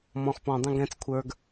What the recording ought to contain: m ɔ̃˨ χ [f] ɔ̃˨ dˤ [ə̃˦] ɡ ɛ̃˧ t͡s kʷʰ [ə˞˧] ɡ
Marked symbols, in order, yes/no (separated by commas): no, no, yes